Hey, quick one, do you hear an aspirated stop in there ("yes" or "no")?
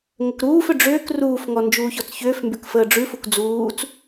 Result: no